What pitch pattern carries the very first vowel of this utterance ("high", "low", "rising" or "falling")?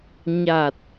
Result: low